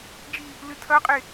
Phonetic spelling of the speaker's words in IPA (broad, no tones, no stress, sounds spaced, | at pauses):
d͡ʒ i | l ɨ tʰ ɐ qʼ e